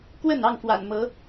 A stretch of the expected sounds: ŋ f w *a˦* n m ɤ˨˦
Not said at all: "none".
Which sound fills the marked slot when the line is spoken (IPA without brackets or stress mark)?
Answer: a̰˨˩